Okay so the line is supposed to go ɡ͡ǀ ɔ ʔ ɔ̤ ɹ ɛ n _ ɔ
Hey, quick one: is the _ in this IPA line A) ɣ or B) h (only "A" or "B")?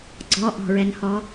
B